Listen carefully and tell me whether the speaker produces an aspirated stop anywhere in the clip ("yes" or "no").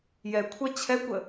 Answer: yes